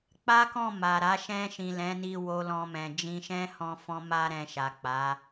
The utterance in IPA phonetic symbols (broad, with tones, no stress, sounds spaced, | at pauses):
k͡p a˦ k ɔ̃˦˨ m a˨ ɾ a˨˦ ʃ ɛ̃˧ ʃ ĩ˨ l ɛ̃˨˦ n i˧ w o˧ l ɔ̃˧ m ɛ̃˨ d͡ʒ ĩ˧ ʃ ɛ̃˦ h ɔ̃˧ f ɔ̃˧ m a˧ ɾ ɛ̃˧ ʃ a˨ k͡p a˨˦